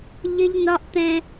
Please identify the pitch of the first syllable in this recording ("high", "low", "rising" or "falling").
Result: high